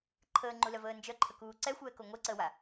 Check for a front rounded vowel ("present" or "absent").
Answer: present